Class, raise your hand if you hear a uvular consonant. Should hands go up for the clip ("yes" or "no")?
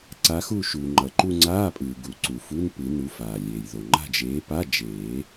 no